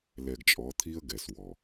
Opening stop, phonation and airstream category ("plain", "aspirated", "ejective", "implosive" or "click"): plain